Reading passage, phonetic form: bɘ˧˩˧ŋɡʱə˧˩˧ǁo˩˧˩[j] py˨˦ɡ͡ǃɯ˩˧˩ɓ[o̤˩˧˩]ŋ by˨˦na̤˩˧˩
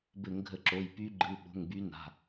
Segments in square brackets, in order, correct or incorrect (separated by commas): correct, correct